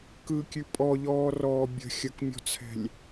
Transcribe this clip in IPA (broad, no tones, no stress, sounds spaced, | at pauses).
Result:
k ɯ kʲ ʉ pʼ ɔ ʎ ɔː r ɔː bʲ ə̤ xʲ ə k mʲ ɔ̤ t͡sʰ ɛ̤ lʲ